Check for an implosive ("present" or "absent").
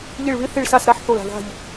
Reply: absent